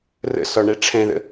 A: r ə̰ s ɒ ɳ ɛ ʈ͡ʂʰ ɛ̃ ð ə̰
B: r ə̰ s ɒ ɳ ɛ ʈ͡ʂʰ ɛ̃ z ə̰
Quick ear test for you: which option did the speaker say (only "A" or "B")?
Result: A